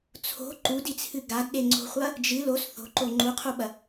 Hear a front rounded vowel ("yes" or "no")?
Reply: no